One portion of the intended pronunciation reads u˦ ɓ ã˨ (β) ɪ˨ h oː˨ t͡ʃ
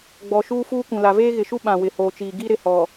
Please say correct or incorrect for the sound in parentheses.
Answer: incorrect